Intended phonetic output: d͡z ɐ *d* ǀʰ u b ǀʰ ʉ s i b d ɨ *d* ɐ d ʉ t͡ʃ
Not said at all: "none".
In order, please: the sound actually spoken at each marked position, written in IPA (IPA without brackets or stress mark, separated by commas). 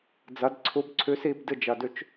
d, d͡ʒ